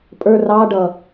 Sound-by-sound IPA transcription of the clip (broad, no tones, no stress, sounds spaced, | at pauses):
pʼ ə˞ r ɑ ɖ ʌ